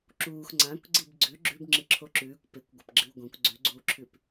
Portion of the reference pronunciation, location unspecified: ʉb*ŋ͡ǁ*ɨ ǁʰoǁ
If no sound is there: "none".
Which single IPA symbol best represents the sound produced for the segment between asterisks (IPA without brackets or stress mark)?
ŋ͡ǁ